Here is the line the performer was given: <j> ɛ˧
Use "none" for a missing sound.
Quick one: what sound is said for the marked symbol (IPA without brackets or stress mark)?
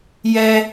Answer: j